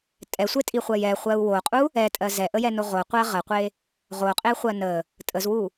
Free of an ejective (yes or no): no